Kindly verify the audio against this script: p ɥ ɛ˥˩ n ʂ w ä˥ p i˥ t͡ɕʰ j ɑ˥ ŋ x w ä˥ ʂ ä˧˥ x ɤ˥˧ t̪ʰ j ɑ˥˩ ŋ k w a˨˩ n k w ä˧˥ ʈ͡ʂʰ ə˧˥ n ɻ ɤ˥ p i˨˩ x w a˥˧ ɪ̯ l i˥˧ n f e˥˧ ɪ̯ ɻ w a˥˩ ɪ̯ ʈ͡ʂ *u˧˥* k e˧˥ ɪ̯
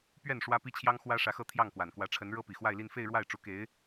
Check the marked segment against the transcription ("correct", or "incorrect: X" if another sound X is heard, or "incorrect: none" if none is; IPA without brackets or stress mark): correct